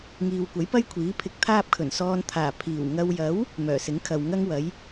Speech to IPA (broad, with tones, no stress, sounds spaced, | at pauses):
ŋ iː˨ w kʷ ɐ˨˥ j p ɐ˥ j kʷʰ iː˨˥ pʰ ɪ˧ k̚ t̪ʰ aː˥ p̚ kʰ ɵ˨˩ n s ɔː˧ n t̪ʰ aː˨˩ pʰ iː˨˩ w ŋ ɐ˧ w j ɐ˨˥ w | m œː˨˩ s ɪ˨˥ ŋ kʰ ɐ˨ w ŋ ɐ˥ ŋ w ɐ˨˥ j